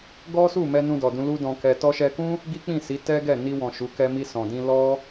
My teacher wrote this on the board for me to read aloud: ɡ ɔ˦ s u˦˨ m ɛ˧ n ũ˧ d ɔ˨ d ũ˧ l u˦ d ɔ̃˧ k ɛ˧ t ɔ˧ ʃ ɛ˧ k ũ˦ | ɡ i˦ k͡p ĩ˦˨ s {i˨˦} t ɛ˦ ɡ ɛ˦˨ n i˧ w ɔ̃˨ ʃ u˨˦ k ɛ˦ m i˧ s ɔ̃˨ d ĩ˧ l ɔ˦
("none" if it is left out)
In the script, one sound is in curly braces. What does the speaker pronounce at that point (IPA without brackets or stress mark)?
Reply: i˨˦